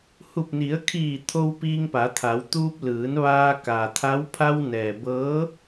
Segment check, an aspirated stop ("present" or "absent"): present